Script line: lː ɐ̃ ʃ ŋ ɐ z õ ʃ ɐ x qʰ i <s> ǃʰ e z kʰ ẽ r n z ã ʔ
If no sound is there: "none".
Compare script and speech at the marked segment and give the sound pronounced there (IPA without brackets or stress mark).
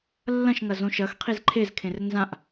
z